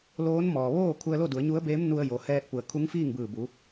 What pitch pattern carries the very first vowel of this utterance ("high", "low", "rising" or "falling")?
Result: rising